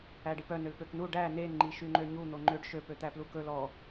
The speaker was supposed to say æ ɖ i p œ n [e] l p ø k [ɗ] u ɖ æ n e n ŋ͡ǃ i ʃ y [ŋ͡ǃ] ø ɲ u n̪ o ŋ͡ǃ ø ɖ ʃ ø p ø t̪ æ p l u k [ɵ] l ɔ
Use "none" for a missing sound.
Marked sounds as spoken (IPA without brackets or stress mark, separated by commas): ø, n, ŋ͡ǃ, ɵ